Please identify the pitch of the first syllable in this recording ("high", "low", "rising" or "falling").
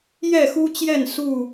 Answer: falling